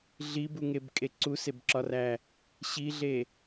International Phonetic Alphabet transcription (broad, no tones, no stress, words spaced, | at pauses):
ɮibuŋebkʼe ǀusebǁɒræ | ɕiɮe